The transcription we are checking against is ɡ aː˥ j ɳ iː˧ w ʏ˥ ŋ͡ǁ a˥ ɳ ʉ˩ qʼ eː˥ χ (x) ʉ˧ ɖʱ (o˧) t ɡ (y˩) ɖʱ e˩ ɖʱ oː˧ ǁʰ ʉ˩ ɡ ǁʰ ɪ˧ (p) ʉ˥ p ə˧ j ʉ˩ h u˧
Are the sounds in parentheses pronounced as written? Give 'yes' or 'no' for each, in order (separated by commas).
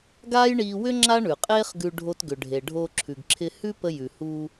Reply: no, yes, no, no